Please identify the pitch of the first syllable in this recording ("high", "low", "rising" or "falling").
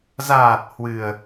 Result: low